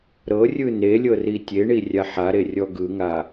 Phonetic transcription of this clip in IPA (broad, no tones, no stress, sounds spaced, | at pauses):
ɾ ɤ rʲ ɯ n e lʲ ɤ r i tʲ e ɳ i rʲ a ħ a ɾ e rʲ ɔ ɡ ɯ ŋ a